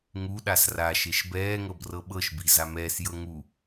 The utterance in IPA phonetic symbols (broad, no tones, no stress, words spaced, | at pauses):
ŋu ɗasraʃeʃ bɛːŋɤb rɤɓɤʃbi zamɛːsjɤ ŋu